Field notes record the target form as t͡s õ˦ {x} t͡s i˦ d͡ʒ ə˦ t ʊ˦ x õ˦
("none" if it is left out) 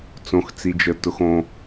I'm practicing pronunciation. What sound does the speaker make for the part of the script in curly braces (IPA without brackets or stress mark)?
x